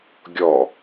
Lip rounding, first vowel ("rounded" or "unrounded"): rounded